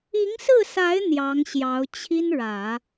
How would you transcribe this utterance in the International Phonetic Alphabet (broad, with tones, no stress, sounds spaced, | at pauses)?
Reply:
i˧˥ ŋ s ɹ̩˥˩ s a˧˥ ɪ̯ n̪ j ɑ˧˥ ŋ ɕ j ɑ˧˥ ʊ̯ t͡ɕʰ i˥ n ɻ ä˨˩˦